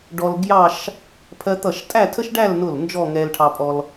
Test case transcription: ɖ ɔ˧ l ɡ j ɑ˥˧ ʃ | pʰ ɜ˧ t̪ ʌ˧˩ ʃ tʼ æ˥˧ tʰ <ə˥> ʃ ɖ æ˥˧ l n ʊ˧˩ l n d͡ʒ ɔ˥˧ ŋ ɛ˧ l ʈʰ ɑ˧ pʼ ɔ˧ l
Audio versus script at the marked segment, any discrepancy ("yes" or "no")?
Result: no